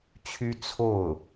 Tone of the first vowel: high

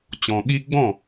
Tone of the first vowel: low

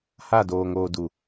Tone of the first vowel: falling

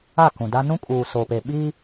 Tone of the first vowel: falling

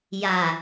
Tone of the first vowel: low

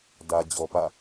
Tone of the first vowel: low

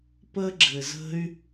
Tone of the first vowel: high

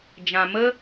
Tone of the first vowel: low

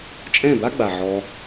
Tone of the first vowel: falling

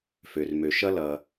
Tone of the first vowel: low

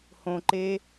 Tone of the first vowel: low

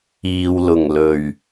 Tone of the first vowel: low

